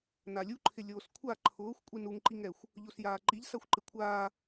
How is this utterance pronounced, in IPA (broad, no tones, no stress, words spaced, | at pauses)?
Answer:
nalʲu ǃʰɪlʲoːskʷʰa ǃʰʊːxʷ kʷʼinuŋ ǃiŋɛxʷ | ʎosjaːǃiʎ saxʷǃɪkʷʰaː